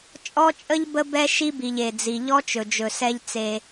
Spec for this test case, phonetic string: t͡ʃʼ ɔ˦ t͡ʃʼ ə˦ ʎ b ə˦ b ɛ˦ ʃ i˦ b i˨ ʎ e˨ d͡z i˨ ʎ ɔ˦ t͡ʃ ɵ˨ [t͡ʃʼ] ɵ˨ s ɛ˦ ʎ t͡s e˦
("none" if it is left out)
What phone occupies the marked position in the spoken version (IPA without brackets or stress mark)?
d͡ʒ